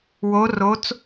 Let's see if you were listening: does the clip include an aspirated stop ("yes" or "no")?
no